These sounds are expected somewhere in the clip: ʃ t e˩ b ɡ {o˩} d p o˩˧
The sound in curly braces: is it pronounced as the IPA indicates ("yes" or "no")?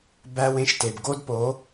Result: no